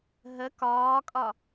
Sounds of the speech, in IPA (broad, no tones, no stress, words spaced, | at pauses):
ɦə kɒːkʼɒ